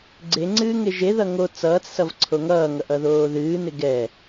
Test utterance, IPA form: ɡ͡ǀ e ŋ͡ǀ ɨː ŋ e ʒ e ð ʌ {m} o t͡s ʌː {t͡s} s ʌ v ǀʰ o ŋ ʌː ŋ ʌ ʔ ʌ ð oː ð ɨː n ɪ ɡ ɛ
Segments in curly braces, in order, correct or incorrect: incorrect, correct

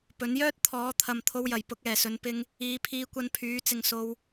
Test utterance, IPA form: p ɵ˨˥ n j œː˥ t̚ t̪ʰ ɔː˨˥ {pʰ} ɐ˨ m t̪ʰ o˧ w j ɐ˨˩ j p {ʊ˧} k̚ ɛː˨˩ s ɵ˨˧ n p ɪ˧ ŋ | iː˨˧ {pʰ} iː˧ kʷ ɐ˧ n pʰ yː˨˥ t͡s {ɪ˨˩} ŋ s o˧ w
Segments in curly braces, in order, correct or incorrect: incorrect, incorrect, correct, incorrect

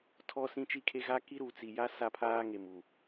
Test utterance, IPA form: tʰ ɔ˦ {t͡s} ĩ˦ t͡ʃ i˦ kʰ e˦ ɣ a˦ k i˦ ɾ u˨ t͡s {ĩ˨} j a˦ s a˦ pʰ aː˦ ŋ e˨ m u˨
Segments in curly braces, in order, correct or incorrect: incorrect, incorrect

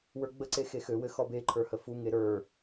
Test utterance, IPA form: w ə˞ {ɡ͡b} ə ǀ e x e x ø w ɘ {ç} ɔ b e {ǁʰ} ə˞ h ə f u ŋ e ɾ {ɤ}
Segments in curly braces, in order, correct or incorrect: correct, incorrect, incorrect, incorrect

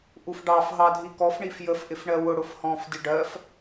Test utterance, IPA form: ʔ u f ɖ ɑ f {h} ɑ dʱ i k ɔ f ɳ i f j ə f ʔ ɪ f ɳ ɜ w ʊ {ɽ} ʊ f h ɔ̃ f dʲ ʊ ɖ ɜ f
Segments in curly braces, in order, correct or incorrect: incorrect, correct

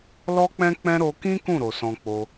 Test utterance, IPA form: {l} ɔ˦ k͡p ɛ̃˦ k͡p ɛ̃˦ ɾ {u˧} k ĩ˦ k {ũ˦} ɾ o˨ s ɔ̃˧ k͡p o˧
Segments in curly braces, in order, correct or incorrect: correct, incorrect, incorrect

